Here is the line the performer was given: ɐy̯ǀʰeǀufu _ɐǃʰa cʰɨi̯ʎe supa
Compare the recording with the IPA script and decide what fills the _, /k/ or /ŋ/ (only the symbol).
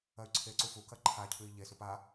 k